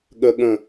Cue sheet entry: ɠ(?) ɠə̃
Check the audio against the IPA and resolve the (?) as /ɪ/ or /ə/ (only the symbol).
ə